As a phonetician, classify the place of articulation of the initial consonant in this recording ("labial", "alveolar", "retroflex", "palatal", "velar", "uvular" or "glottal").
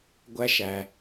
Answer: velar